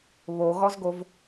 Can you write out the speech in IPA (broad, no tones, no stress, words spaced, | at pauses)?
βoɣɔzɡov